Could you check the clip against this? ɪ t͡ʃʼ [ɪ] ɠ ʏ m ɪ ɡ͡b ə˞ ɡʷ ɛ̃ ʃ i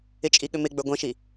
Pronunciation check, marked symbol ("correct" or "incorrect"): incorrect